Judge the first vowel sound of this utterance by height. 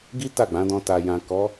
high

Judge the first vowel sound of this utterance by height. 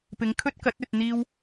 high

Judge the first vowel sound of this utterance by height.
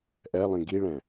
mid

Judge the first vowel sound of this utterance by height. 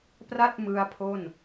low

